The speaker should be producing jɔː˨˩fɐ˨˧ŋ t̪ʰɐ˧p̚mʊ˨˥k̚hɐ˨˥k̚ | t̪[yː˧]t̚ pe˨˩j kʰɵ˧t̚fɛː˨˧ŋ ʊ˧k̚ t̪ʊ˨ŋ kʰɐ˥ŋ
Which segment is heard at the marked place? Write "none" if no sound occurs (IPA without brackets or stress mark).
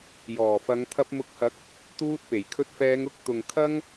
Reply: uː˧